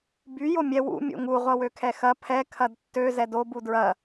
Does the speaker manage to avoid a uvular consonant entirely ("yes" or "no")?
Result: no